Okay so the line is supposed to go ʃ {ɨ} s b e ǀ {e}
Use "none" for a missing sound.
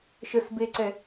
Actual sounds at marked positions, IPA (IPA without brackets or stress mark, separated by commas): ə, ɛ